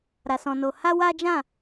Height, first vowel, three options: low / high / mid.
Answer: low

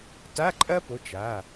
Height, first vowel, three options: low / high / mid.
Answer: low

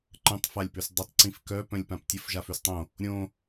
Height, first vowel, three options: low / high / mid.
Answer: mid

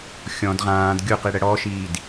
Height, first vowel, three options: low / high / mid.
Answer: mid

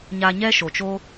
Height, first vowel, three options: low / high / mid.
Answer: low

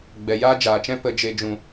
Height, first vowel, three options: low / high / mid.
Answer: mid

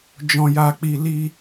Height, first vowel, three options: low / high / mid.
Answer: mid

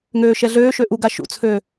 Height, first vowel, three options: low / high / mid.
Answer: mid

